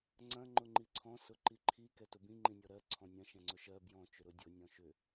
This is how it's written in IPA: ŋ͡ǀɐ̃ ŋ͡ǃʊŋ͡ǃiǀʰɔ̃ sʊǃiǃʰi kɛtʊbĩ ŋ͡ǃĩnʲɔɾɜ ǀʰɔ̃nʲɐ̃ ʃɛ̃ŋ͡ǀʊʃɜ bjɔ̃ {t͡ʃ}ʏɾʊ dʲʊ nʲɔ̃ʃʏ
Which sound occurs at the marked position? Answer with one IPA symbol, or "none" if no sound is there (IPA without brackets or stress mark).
t͡ʃ